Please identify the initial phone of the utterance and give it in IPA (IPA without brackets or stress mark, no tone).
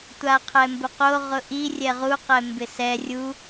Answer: tʷ